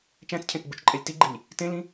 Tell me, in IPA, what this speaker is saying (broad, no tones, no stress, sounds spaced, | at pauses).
t͡ʃ æ̃ t͡s cʰ ẽ t͡s ɡ͡b u t͡ʃ ǃʼ ɛ lʲ t i ɡ͡ǃ i lʲ | t ẽ l ĩ